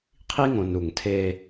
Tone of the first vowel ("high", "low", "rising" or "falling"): high